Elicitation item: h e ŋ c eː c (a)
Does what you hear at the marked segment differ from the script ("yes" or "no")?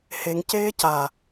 no